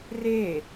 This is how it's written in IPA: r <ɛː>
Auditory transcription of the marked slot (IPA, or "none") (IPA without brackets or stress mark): eː